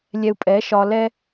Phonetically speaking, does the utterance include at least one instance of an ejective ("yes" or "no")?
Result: yes